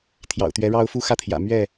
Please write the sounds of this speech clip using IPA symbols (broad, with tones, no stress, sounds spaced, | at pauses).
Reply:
t̪ʰ j ɑ̰˨˩ ʊ̯ t̪ ɥ ɛ˨˦ ɻ ɑ˦ ʊ̯ f u˦ x ä˥˨ t̪ʰ j ä̰˨˩ m ɥ ɛ˥˨